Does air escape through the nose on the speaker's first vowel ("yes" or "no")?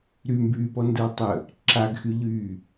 no